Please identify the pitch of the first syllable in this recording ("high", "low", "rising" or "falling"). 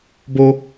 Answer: high